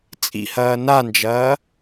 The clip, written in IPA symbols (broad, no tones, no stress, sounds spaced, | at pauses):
t͡sʼ ḭ h ɐː n a n d͡ʒ ɐː